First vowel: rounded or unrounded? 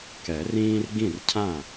unrounded